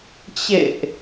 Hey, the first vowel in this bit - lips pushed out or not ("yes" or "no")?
no